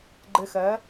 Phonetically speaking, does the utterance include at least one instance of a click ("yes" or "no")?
yes